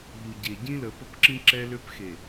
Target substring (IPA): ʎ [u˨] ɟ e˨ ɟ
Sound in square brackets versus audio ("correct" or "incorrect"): correct